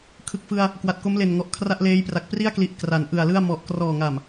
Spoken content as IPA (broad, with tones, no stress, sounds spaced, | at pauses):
kʰ ɯ˨˩ k̚ f ɯ˧ a̯ | k w a˨˩ t̚ k o˦˥ m l e˨˩ n ŋ ɔ˨˩ ʔ kʰ r a˥˩ ʔ l eː˦˥ j p r a˨˩ k̚ p r i˥˩ a̯ k l i˨˩ ʔ k r a˩˦ n ʔ ɯ˨˩ a̯ l ɯ˥˩ a̯ m ɔ˨˩ ʔ k r ɔː˨˩ ŋ a˨˩ m